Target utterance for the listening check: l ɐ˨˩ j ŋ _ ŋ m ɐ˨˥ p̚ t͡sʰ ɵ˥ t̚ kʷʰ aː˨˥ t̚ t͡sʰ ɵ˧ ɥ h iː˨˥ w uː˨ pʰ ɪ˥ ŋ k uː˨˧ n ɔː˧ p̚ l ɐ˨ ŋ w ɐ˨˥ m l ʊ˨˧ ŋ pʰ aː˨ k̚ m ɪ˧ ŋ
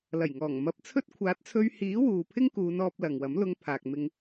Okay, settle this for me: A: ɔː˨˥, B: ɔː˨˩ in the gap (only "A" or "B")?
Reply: B